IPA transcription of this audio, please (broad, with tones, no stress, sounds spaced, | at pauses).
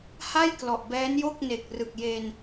h a˥˩ j k l ɔ˨˩ ʔ b ɛː˦˥ n j o˥˩ k̚ n e˨˩ k̚ r ɯ˨˩ k̚ j e˧ n